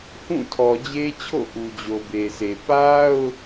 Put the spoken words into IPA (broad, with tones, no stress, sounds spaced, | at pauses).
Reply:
h ũ˦˨ tʰ ɔ˨ d͡ʑ e˦ t͡ɕʰ o̰˦˨ ʔ u˨ d͡ʑ o˨ b e˨ s e˨ p a˦ ʊ̯